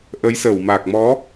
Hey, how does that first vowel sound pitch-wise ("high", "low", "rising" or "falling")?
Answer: rising